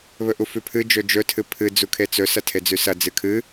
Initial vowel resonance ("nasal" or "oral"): oral